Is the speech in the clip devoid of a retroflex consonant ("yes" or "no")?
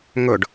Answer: no